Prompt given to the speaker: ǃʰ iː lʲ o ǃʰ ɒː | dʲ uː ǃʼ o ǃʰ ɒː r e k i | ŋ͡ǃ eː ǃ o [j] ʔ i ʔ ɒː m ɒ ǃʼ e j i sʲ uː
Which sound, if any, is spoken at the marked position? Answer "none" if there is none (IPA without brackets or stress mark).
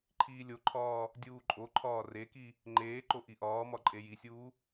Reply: none